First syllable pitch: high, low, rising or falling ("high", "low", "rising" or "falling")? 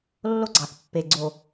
high